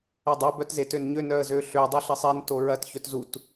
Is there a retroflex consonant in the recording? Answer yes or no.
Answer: no